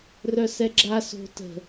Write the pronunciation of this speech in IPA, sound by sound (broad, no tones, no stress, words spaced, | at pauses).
rœsɛɡ͡ǁa so̤ tə̤